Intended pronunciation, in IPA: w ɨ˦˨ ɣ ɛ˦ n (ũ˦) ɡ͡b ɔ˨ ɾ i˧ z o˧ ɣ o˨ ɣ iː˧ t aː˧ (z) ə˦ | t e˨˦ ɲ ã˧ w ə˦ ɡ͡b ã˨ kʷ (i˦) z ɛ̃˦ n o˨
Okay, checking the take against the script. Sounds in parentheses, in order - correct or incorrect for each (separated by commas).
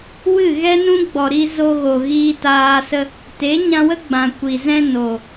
correct, incorrect, incorrect